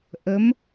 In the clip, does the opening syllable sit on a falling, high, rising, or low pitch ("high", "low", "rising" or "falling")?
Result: rising